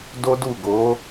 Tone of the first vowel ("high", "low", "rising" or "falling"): high